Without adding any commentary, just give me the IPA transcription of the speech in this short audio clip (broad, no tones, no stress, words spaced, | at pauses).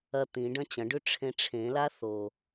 ɐ t̪ĩ ɖɐ̃t͡ɕɐ̃ɖʉ ʈ͡ʂʰẽʈ͡ʂʰẽla θo